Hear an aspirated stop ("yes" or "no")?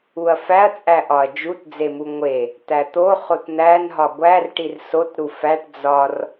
no